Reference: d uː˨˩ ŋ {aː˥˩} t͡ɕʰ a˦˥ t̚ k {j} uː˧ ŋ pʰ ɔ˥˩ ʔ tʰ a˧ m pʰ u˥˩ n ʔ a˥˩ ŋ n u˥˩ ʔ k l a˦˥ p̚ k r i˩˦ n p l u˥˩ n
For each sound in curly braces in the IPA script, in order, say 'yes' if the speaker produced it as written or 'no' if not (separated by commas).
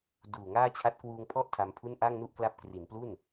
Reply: yes, no